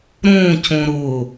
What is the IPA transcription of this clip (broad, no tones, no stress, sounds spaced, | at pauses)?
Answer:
ɾ õː c õ ɾ ʊː